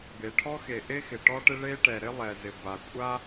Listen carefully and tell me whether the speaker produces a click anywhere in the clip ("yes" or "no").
no